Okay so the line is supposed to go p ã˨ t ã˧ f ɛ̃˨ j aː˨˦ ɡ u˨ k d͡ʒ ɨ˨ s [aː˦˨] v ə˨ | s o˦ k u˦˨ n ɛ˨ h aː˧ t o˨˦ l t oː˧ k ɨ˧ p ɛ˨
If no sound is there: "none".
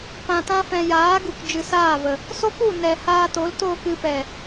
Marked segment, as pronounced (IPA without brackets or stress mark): aː˦˨